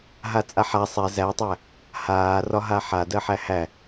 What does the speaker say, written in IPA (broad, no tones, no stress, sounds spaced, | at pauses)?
ɦ a t͡sʼ a ħ a sˤ ɛ z æ tˤ æ | h aː r ɒ ɦ a ħ a d ɜ ħ æ h æ